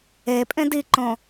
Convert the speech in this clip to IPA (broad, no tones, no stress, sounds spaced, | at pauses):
e pʼ ẽ d i ǃ õ